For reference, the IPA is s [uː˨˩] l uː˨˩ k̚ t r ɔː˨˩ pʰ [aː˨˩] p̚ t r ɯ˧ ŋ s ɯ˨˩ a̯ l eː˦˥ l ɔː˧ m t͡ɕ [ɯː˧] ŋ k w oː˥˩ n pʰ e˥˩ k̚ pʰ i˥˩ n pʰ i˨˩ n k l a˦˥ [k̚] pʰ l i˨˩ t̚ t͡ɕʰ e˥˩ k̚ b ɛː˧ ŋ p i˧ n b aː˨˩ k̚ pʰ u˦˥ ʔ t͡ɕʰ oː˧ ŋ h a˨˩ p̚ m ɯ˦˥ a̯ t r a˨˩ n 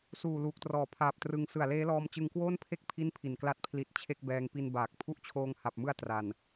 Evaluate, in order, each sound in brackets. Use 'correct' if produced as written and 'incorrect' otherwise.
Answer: correct, correct, incorrect, incorrect

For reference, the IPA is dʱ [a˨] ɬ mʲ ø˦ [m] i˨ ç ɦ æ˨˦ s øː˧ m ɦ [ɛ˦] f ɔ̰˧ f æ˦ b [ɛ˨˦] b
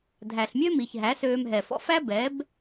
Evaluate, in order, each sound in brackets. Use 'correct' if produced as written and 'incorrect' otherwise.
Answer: incorrect, correct, incorrect, correct

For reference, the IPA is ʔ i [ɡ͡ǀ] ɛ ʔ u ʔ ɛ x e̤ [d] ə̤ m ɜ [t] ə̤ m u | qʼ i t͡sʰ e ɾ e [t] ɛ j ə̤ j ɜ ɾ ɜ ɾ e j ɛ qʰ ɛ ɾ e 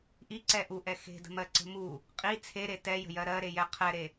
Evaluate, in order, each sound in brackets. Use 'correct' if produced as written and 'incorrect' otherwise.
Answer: incorrect, correct, incorrect, correct

